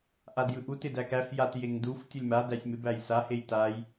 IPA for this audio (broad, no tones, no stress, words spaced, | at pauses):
ʔadjɯʔut ɪdækæf jat jeŋduf tʲulʲma dæsʲmɪ bæjsa hejtaj